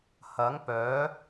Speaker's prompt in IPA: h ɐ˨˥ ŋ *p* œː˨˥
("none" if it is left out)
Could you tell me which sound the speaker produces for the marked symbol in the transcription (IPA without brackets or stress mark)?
p